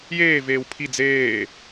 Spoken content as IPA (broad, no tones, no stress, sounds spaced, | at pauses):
j eː v eː w pʰ i d͡z eː